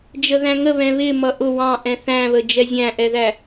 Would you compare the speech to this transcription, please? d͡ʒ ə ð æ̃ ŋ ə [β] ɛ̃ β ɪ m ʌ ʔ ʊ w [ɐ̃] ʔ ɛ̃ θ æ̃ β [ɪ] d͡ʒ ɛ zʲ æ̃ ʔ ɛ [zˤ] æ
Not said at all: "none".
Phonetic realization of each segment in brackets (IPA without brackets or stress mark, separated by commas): β, ɑ̃, ə, ð